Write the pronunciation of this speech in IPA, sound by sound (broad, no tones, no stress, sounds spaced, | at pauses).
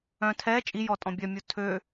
œ̃ tʰ ɛ t͡ʃʼ i j ɔ tʼ ɔ̃ bʲ œ mʲ u tʰ ø